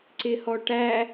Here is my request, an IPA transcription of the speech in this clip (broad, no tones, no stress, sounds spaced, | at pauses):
ǀ ɪ h ɔ ʈ æ